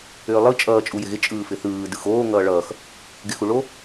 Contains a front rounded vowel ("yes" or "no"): yes